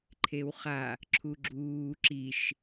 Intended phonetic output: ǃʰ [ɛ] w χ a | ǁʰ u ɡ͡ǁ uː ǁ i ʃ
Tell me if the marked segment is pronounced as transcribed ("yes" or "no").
no